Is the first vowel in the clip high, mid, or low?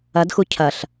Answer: low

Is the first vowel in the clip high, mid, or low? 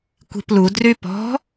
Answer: high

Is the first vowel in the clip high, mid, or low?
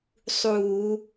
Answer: high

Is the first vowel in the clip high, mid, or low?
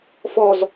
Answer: mid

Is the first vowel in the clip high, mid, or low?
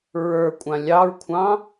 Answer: mid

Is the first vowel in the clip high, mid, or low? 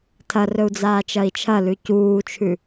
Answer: low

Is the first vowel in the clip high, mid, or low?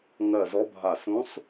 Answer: mid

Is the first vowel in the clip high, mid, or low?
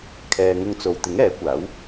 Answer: mid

